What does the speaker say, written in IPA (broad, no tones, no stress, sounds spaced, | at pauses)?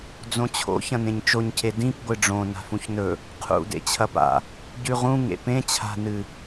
d͡z õ t͡ɕʰ o̰ ç ɐ̃ n ẽ ɲ t͡ʃ o ɲ cʰ e d ĩ p ɡʷ ɨ ɖ͡ʐ õ n a̤ f ũ ç n ɵ | qʰ ṵ d ḛ t͡ɕʰ ɐ p a̰ | ɟ ʉ ʁ ũ ŋ ḛ p ẽ t͡ɕʰ a̤ n ɨ